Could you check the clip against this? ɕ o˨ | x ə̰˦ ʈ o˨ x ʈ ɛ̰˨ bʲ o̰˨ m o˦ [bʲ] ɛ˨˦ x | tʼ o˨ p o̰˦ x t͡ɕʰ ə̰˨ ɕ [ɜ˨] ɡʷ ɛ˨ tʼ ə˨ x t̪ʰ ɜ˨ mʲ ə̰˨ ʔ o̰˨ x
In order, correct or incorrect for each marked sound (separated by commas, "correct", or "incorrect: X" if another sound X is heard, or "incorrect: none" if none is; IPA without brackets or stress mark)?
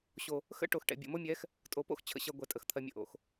incorrect: mʲ, correct